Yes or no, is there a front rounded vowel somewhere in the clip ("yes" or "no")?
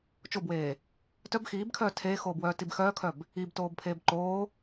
yes